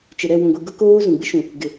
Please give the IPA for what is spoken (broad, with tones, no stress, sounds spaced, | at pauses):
t͡ʃ ɪ˨ ɾ ɛ˦˨ w ũ˨ ɡʷ i˨ ɡ ʊ˦ k oː˦ z ũ˨ ɡ͡b ɪ˦ ʃ ũ˨ | ɡ ɪ˨